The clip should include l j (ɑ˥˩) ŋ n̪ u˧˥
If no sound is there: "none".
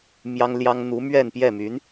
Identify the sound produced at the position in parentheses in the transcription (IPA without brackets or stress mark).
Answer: ɑ˥